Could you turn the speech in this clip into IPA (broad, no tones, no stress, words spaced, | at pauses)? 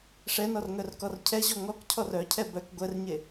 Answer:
ʂɛnɔrŋœrkɔr cʰɛʑɔ ŋɔkcʰɔr œcʰɛ bœk ɡʷɛrɲe